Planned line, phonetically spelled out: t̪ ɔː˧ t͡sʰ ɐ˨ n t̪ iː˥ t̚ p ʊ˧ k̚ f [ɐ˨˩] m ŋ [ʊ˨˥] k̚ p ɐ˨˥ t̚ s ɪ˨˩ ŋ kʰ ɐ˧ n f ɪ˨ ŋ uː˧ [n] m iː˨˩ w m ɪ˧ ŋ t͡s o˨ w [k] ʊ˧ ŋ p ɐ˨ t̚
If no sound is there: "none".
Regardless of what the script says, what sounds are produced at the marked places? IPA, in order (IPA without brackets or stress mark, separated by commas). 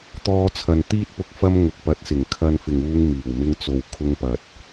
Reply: ɐ˥, ʊ˨˥, ŋ, kʰ